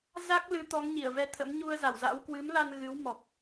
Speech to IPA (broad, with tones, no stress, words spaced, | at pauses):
za˦˥k̚ lɨ˨˦t̪ɔ˨˦ŋ ɲi˧˩ə̯vɛ˧t̪ʰə̰˧˥m ɲu˧ə̯za˧˩wza̰˧˥w kwɨ˨˦mla˧n ɣɨ˨˦w mɔ˨˩k̚